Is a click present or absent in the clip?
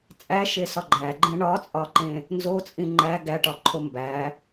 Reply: present